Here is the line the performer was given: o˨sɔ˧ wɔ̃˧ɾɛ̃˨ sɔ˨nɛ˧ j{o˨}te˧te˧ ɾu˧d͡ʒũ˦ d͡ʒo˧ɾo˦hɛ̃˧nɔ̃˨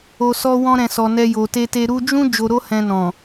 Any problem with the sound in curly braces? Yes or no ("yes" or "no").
no